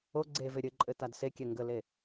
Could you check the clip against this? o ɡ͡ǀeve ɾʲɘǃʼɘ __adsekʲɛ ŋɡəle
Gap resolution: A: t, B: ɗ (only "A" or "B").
A